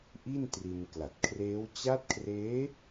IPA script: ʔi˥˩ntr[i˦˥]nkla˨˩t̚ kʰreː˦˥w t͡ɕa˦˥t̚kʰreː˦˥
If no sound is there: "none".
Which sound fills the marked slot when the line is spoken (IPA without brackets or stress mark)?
i˧